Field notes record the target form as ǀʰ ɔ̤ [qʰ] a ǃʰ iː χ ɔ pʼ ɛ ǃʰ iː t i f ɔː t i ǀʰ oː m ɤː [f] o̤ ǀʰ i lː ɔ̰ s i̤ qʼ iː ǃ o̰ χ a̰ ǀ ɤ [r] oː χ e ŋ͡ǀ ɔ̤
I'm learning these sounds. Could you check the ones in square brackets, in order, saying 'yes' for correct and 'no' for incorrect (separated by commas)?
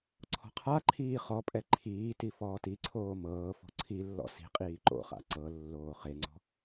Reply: yes, yes, no